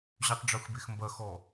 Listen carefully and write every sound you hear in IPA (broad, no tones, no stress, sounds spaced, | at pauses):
ʑ y tˤ ɖ͡ʐ u x b e x m b ɐ x ɔ